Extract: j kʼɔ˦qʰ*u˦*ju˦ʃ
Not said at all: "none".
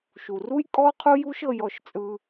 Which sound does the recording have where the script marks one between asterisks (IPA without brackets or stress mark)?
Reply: u˦